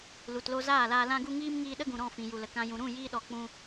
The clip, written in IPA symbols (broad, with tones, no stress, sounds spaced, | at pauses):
l u˨ t l o˧ z aː˦˨ l aː˧ l ã˦ ɡ u˦ ŋ iː˦ m ŋ iː˧ ɗ ə˦ ɡ ũ˨ ɾ ɔ̃˦˨ f ĩ˨ j u˨ l ə˨ k ã˦ j ũ˧ ɾ ũ˦˨ j iː˧ ɗ ɔ˨ k͡p ũ˧